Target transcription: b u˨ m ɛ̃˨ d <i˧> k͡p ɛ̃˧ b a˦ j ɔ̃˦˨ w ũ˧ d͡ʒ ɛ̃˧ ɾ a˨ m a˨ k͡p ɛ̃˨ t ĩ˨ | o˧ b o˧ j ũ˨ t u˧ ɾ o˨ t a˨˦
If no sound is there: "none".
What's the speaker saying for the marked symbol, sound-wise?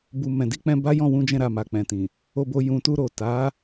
i˧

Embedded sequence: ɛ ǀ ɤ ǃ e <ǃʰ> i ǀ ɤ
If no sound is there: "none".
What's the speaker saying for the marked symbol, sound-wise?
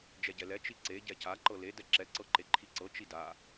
ǃʰ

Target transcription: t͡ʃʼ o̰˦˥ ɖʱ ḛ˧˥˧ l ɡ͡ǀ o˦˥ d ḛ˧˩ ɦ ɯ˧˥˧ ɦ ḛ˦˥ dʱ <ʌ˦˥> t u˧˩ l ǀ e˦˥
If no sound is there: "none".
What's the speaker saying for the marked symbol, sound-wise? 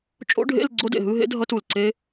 ʌ˦˥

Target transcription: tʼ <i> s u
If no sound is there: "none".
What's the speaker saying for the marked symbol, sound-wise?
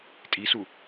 i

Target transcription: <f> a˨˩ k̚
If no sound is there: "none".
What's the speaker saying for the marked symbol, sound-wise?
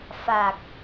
f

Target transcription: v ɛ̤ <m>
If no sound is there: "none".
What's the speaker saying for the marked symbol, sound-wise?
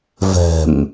m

